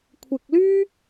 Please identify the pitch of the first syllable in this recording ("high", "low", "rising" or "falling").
low